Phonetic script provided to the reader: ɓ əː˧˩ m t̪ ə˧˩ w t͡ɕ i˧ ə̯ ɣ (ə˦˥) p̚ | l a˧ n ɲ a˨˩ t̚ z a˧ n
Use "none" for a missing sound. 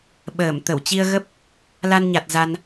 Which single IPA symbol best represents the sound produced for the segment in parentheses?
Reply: ə˦˥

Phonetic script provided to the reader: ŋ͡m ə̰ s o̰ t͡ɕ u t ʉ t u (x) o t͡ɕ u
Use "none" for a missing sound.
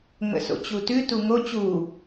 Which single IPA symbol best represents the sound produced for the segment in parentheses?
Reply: ŋ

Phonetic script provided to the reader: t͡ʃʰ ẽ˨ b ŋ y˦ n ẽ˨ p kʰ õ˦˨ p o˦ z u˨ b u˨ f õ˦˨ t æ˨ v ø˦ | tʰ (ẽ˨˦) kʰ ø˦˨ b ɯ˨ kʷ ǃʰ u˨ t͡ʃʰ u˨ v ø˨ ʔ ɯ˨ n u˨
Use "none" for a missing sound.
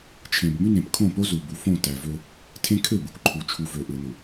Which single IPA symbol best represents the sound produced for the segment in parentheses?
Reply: ẽ˦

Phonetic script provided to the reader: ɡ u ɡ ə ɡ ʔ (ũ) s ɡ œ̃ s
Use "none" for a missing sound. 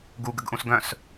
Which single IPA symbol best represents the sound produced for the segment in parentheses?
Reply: ũ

